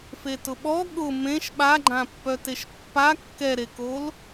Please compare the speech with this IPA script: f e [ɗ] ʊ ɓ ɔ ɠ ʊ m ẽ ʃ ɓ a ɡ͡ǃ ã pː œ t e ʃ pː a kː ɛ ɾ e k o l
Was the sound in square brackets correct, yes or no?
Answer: no